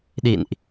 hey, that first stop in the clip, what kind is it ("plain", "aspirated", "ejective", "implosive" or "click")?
implosive